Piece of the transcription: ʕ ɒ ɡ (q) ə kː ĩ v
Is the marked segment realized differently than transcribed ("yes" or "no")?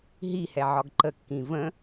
yes